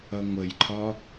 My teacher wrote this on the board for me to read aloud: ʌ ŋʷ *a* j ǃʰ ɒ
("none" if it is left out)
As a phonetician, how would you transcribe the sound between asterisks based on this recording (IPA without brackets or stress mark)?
ə